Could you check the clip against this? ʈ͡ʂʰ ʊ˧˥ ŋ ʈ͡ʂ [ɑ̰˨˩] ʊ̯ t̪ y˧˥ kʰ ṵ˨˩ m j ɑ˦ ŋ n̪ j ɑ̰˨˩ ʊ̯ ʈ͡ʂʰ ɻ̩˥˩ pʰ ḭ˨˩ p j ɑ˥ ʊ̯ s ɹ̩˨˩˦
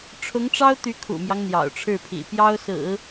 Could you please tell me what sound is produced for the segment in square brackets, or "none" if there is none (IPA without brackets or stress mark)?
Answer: ɑ˥